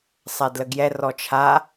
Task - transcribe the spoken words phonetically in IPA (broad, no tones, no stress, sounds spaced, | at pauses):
sˤ ɛ d l ə ɡ j ɛ r ɔ t͡ʃʰ a